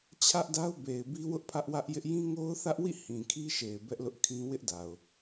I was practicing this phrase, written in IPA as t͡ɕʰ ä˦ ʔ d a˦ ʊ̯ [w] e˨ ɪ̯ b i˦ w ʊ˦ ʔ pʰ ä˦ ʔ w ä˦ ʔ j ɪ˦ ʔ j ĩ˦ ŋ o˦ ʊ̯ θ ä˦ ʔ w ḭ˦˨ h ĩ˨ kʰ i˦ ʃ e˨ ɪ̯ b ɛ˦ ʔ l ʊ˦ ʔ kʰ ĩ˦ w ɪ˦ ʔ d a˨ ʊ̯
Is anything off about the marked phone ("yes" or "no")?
yes